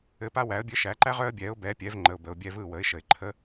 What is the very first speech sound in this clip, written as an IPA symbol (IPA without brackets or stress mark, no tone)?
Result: ɘ